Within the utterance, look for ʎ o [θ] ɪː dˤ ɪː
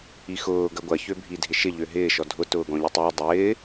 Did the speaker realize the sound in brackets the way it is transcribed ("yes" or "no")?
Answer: no